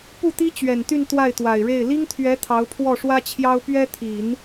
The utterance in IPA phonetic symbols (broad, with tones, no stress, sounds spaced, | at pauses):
p u˥˩ t̪ i˥ t͡ɕ ɥ ɛ˨˩ n t̪ y˥˧ n t̪ w a˥˩ ɪ̯ t̪ w a˨˩ ɪ̯ ɻ e˥˩ ɪ̯ l i˥ ŋ t̪ʰ ɥ ɛ˧˥ t̪ʰ ɑ˧˥ ʊ̯ pʰ w ɔ˥˩ ʂ w ä˥ t͡ɕʰ j ɑ˥ ʊ̯ p ɥ ɛ˥ t̪ʰ i˨˩˦ n